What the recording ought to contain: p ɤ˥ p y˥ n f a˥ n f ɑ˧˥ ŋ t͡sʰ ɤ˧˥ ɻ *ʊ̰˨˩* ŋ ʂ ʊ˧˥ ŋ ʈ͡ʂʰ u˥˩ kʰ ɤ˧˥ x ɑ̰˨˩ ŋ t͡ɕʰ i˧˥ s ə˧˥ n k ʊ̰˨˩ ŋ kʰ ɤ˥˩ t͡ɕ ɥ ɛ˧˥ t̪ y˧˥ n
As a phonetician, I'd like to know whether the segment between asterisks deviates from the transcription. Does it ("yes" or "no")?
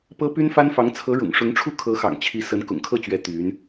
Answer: no